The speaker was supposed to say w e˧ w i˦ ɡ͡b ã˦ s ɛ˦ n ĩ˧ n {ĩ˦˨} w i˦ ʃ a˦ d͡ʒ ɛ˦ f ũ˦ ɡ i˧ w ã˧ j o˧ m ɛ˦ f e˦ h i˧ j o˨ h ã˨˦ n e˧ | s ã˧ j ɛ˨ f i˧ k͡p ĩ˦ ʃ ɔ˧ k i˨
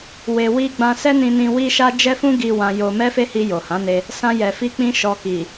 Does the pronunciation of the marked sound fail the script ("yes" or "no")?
yes